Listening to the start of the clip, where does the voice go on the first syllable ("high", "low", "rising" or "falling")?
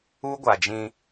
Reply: high